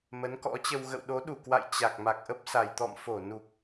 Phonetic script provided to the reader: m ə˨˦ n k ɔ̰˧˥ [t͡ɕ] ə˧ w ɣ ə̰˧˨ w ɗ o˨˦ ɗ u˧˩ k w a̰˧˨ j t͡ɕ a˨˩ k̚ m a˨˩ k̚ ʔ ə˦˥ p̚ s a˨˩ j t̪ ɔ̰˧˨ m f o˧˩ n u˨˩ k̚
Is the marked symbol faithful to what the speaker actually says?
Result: yes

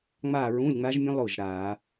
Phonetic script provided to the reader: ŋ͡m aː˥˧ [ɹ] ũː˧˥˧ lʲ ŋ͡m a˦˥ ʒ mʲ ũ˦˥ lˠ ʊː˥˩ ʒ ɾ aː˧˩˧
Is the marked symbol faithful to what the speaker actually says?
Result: yes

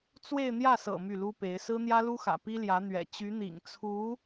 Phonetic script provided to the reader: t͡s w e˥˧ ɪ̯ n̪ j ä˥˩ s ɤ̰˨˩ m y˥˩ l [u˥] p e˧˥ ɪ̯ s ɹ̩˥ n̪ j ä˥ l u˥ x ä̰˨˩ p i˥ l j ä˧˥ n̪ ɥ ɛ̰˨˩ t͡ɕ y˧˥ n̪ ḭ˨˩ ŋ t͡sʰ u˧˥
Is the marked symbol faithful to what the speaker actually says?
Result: yes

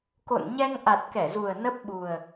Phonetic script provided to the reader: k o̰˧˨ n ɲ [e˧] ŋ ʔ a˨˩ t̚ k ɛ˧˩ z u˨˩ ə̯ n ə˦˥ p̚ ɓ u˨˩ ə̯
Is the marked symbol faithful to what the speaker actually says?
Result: no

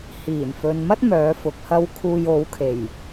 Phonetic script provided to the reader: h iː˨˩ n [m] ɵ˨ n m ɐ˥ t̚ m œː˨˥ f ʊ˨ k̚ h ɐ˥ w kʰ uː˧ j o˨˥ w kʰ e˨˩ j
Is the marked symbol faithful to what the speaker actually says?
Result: no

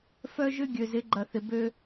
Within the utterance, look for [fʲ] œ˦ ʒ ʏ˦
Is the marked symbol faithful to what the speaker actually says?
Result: no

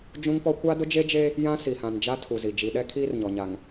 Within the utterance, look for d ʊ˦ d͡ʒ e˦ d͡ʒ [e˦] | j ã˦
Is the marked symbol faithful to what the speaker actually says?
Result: yes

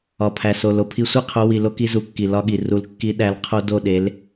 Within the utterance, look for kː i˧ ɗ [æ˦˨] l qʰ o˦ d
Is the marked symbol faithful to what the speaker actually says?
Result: no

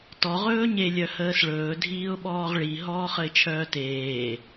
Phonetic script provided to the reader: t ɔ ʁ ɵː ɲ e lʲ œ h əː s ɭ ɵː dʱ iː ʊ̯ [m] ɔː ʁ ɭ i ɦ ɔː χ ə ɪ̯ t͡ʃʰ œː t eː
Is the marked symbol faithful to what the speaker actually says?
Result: no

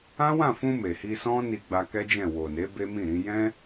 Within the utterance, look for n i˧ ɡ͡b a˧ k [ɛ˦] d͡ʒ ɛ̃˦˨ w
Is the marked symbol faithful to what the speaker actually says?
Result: yes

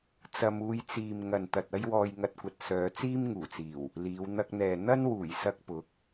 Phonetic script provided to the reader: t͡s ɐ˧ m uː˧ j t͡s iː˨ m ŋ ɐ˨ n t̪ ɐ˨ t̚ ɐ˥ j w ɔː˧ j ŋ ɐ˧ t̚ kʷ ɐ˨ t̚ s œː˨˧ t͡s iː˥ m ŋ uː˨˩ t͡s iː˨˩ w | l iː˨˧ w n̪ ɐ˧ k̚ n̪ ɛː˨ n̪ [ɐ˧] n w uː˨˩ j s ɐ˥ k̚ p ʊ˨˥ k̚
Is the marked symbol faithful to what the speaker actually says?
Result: no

